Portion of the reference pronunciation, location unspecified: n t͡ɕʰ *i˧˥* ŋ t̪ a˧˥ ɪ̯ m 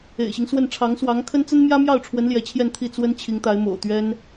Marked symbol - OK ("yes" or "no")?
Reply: yes